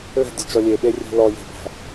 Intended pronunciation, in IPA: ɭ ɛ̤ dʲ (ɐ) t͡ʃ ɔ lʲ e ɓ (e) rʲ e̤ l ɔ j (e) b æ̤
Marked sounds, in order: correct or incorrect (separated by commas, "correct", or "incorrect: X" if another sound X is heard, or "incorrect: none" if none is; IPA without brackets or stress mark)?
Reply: correct, correct, incorrect: e̤